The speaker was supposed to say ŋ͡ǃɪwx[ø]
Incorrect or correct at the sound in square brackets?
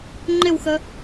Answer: incorrect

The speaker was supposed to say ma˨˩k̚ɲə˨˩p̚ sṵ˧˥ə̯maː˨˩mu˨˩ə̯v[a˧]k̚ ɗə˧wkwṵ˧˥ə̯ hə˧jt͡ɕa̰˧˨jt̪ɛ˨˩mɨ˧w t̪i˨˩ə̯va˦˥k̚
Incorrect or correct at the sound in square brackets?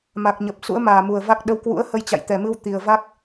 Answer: incorrect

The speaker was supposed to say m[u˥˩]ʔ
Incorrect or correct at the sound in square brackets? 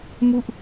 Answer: correct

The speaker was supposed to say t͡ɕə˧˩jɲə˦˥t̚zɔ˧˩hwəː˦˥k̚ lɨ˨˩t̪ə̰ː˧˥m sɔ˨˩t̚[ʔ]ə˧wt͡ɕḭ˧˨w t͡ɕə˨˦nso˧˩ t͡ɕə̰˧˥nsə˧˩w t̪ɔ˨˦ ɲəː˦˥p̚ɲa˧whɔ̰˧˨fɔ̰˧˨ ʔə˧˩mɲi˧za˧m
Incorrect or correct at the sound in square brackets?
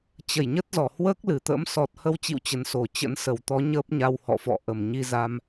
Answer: incorrect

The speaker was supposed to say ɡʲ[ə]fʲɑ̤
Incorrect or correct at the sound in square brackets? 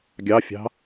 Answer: incorrect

